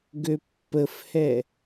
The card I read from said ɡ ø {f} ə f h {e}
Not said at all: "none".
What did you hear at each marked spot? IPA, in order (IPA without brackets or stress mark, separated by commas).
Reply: pː, ɛ